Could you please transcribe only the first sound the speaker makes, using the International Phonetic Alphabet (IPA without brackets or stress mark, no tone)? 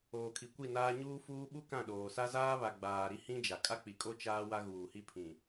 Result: oː